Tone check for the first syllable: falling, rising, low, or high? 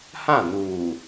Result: falling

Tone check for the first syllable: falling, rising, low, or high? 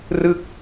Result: falling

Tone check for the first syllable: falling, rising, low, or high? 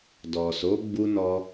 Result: low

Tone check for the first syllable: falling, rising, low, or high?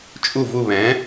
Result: falling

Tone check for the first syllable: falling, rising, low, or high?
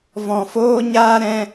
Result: low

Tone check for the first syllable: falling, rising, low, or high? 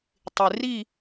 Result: low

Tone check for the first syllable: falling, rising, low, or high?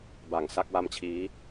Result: low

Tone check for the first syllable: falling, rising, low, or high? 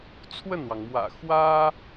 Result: falling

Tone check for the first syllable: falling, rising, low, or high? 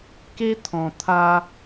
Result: high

